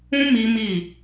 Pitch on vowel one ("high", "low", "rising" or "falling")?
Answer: high